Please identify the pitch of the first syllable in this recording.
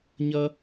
high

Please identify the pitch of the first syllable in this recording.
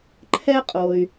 high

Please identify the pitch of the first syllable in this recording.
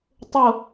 falling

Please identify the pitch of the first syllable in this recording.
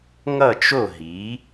falling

